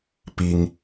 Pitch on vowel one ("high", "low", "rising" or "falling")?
high